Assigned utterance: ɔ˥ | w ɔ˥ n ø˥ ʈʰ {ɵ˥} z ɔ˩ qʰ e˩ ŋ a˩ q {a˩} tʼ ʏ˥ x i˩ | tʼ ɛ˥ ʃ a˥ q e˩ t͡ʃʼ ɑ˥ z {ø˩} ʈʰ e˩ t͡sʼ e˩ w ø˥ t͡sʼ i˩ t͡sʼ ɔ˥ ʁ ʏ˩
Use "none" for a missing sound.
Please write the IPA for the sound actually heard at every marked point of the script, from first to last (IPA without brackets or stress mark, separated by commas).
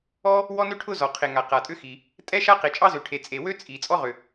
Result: ʊ˥, a˩, ø˩